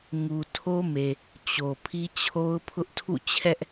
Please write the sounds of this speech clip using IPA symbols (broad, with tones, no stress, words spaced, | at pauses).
ŋu˨ tʰo˦me˨ | t͡ɕo˨ pʰi˦t͡ɕʰo˦ʊ̯pʰʊ˦ʔ tʰṵ˦˨t͡ɕʰɛ˦ʔ